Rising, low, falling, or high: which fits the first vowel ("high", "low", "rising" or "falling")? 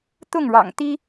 falling